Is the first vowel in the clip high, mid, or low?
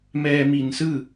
mid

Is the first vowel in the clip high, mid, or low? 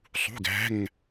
high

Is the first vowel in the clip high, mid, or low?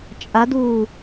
low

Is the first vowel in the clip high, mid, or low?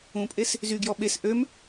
high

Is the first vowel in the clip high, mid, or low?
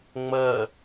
mid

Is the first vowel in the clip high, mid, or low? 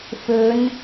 mid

